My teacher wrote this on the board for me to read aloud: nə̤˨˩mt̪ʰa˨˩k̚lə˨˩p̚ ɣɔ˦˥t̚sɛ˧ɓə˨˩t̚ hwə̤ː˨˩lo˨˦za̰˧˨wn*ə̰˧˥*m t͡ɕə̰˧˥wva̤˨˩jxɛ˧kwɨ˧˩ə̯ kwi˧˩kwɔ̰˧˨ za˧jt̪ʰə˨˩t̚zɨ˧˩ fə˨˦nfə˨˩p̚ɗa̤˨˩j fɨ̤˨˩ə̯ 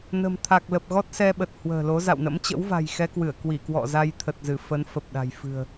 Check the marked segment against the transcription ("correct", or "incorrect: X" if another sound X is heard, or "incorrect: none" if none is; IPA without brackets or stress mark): correct